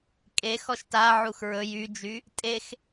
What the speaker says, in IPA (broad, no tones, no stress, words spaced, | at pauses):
kʼe xɔʃtaʕux ɹɵj yd͡ʒy | tʼex